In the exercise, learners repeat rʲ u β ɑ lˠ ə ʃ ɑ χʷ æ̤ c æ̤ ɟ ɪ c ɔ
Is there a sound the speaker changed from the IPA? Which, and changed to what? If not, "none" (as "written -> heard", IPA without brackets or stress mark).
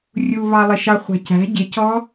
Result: ə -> ɪ